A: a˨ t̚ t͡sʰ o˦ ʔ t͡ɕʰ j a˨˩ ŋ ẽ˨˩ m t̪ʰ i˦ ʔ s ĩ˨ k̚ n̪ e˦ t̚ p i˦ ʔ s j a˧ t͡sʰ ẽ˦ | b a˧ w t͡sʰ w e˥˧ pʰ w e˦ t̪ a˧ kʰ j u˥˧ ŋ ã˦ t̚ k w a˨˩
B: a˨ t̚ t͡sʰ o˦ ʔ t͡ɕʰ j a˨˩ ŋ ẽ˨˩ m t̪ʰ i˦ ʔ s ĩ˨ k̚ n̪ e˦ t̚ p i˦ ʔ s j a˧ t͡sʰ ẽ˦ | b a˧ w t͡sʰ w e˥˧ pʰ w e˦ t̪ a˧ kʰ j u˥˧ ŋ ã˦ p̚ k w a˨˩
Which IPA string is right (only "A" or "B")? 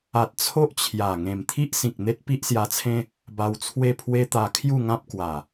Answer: B